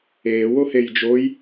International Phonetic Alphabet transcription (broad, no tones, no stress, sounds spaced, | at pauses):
eː w o h e j d͡ʒ o j